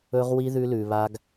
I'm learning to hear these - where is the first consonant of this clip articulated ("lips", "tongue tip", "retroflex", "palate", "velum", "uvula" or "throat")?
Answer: uvula